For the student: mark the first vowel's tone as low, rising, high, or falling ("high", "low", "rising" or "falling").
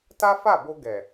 high